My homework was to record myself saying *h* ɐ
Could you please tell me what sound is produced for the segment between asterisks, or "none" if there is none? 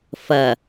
f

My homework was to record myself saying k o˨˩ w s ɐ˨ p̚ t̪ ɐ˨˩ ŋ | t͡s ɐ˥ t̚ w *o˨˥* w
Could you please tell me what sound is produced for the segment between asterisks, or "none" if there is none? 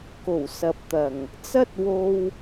o˧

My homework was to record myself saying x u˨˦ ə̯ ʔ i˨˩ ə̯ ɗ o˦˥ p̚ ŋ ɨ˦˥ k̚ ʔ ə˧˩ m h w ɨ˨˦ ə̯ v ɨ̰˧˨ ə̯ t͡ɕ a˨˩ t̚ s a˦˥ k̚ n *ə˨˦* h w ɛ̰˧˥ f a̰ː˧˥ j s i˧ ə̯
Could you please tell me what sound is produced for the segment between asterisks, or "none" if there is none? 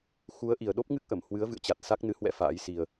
ɨ˨˦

